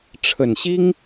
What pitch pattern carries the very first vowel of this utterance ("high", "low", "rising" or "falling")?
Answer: low